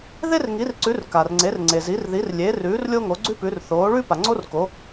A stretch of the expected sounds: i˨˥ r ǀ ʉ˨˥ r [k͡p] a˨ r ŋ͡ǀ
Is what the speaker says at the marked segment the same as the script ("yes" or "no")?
no